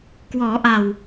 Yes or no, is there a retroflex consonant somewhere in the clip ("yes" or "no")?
no